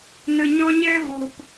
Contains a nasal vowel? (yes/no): yes